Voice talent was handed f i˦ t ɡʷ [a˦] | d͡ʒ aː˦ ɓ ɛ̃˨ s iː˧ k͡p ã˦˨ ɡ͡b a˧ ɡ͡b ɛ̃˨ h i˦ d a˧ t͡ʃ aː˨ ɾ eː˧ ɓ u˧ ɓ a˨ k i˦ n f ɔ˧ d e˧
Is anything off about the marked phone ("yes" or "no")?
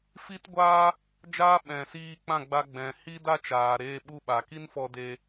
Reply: yes